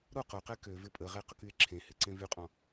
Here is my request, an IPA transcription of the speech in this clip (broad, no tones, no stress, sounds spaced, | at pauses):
ɾ o q o q ɛ k ø v ɪ pʼ ə ʁ e q ʊ k y e̯ ǁʰ ẽ h ɪ ǀ ẽ v y qʼ ɔ̃